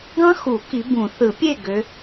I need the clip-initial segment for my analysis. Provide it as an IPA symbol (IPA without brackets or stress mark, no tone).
ɡ